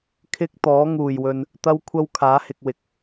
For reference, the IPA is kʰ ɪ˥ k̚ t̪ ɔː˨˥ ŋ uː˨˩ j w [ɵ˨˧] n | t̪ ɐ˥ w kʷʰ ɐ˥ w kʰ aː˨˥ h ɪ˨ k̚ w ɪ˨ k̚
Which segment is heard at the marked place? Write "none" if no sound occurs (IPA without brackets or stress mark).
ɵ˨